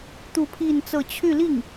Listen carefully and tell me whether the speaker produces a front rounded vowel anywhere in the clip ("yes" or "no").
yes